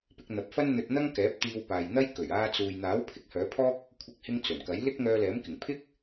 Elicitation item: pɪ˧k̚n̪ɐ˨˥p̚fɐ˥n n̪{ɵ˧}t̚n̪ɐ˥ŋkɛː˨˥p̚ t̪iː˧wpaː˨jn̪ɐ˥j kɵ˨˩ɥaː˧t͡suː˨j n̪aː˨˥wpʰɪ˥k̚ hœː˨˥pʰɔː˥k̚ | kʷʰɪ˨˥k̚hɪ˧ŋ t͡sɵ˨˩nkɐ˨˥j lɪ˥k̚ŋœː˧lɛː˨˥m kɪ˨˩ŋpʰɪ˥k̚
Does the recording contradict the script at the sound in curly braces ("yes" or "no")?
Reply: no